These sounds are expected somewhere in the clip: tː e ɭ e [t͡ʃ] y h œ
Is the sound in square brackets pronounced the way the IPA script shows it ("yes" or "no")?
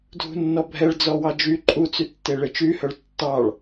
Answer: yes